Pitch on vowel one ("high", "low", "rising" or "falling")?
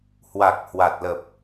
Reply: low